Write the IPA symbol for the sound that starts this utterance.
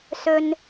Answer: s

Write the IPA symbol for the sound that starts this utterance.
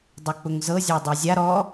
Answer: dˤ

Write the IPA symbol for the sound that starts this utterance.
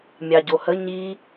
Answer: mʲ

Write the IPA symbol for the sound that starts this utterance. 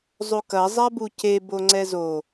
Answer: zˤ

